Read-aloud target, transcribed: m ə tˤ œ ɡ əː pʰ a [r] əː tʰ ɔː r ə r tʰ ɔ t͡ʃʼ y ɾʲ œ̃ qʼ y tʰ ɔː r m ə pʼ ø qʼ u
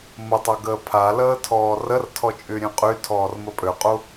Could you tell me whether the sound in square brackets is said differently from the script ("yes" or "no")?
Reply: yes